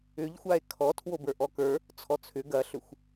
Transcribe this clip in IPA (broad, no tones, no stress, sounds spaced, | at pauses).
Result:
ʏ ʎ xʷ a e̯ kʰ ɔ tʰ w o b ə˞ ʔ ɔ k ə˞ | t͡sʰ ɔ t͡sʰ ʏ ɡ ɐ ɬ ʏ xʷ